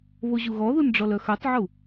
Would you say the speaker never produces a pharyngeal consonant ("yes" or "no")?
no